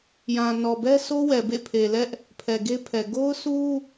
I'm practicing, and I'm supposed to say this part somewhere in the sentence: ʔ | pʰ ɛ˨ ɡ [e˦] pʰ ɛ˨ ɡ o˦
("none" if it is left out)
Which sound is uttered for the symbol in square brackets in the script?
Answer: e˦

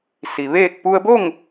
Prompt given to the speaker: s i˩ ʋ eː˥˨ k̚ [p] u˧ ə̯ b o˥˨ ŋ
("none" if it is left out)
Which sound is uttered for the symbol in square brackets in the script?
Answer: p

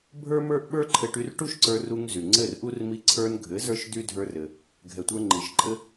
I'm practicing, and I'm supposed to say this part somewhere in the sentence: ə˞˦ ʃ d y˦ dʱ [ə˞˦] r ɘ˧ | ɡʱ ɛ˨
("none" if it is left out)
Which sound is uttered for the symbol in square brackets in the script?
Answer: ə˞˦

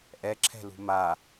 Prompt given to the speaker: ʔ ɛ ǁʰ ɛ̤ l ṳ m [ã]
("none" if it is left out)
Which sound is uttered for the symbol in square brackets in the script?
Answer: a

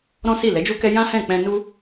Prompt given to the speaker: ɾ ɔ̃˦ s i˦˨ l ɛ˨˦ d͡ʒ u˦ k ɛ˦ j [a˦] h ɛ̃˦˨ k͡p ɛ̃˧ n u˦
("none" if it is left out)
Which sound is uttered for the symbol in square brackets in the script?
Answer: ã˦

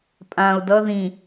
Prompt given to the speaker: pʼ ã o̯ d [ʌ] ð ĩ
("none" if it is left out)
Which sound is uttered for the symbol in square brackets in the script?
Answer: ʌ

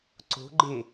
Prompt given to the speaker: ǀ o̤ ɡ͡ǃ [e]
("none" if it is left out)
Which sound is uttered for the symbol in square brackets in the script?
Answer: e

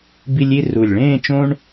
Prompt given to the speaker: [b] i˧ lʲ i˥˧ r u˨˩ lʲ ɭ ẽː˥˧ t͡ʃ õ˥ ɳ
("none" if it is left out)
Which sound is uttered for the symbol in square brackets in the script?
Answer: b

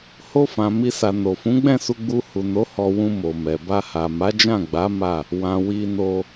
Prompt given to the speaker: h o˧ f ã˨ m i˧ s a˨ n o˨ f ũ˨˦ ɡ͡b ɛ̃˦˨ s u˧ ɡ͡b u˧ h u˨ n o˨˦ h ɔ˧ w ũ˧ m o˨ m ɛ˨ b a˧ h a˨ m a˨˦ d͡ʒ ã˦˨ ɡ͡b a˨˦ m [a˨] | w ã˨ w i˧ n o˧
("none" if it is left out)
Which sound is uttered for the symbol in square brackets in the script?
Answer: a˦˨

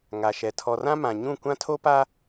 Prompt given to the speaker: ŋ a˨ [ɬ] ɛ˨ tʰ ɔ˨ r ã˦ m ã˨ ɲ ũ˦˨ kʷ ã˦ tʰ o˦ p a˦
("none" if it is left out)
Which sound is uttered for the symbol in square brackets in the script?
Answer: ʃ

